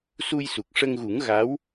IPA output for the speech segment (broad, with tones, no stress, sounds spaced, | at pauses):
s u˧ j s u˨˩ k̚ ʂ ə˧ ŋ ɣ u˨˩˦ ŋ ɣ a˧˥ w